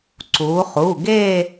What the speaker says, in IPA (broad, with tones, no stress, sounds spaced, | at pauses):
ǀ uː˩˧ χ u˩˧˩ ɡ eː˥˧